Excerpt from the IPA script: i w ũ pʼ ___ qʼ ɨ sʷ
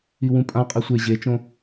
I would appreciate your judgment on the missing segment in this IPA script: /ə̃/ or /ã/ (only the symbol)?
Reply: ã